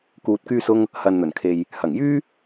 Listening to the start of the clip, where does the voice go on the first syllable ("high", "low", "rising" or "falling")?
low